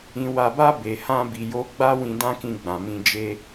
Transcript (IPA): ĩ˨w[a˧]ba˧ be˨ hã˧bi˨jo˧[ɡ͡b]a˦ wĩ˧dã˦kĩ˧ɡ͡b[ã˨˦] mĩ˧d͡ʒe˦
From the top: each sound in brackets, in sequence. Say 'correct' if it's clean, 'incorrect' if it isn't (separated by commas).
incorrect, correct, incorrect